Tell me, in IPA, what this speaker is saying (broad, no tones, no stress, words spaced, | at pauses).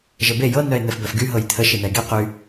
ʒəbe jɤ nœe̯n̪ɛfbœfɡy ɦɤjt̪ʰə ʃin̪ɛe̯ɡe qy